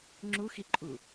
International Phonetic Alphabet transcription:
ŋ͡ǁuxiǃʼu

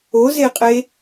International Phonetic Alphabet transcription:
ozeqʼe

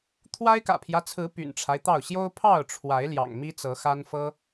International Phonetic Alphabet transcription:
t̪ʰwa˦ɪ̯kä̰˨˩pʰjä˦t͡sʰɹ̩˨˦ py̰˨˩nʈ͡ʂʰa˦ɪ̯t̪ɑ˥˨ʊ̯ ɕjo˦ʊ̯pʰɑ˥˨ʊ̯ʈ͡ʂʰwa˨˦ɪ̯ ljɑ̰˨˩ŋmi˦t͡sɤ˨˦xa˦n fɤ˦

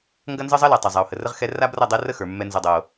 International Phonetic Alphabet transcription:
ŋɡɐ˦nzɤ˦zˤʌ˦lɛ˨ tˤa˨zˤa˨o̯ hə˨rə˦ʁxɛ˦ ra˦brʌ˦˨dˤɛ˦ rə˦xə˞˨ mːɛ˦nzʌ˦dˤɤ˦o̯

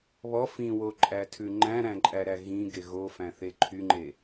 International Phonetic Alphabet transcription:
βɔ fĩwoǃʼætʰʉ ŋ͡ǃæ̃ɾæ̃ǃʼæɾæ ɣĩɡe ɣofæ̃θe ǃʰyŋ͡ǃe

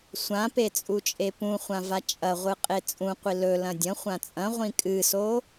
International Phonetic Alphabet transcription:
sʷãpe t͡sʼut͡ʃʼepũχʷã vat͡ʃʼɐ ʁʷɨqʼet͡sʼũqʷi lɵ lɐ̃dʲɐ̃ χʷãt͡sʼɐ̃ ʁʷĩkʼɨso

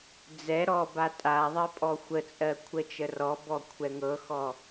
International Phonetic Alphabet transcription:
d͡zɛ ɾɔba tʼaðˤɜ pʼɔxʷət͡sʼɜ kʷʰət͡ʃərɔbɔ kʷʰɛŋɤxɔ

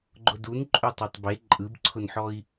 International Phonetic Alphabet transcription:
ɡ͡ǃʊdun ǃʼøtˤotˤbe ǃʼɯbǀʰʊnħɔi̯

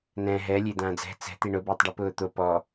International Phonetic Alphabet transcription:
nɛ̃ ɦɛ lʲed̪ãːd͡zɛ̤ t͡sɛ̤ t̪iɳʊ bʊːtˤɖipʊːt̪o pɔ

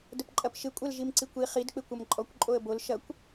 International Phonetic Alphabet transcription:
dəpǃʼɐpʃɪ kʷʼɐlʒimǀikʷi χid k͡pɪkʷɐmǃʼɔkʷ ǃʼoə̯bol ʃɐkʷ

